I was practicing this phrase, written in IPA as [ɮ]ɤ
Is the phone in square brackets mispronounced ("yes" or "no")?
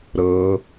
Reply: yes